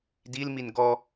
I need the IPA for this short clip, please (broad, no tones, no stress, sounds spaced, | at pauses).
d i l m i n ɡ ɔ